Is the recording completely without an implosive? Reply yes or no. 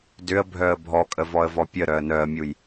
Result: yes